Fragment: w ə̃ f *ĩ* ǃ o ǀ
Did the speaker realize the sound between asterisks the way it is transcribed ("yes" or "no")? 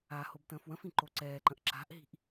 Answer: yes